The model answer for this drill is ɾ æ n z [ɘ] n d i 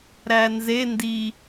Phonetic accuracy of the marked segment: incorrect: e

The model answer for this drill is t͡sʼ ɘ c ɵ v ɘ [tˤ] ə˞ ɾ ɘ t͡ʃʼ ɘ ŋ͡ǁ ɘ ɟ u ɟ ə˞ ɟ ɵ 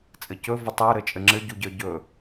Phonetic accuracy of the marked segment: correct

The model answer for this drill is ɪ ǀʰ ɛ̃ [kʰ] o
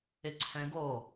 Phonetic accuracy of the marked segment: incorrect: ɡ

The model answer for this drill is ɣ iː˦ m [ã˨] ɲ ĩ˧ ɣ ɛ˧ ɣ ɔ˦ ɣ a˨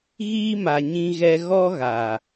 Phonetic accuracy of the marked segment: incorrect: a˨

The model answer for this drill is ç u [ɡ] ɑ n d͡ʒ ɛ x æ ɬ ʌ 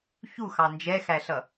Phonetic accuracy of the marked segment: incorrect: x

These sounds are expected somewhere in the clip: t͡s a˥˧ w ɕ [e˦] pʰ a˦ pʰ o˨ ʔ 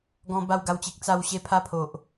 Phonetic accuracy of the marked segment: correct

